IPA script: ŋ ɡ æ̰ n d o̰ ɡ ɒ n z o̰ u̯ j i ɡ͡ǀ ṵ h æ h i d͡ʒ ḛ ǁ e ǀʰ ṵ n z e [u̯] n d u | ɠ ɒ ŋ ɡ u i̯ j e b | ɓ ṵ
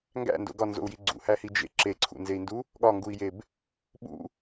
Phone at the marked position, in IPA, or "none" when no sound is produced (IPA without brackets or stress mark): i̯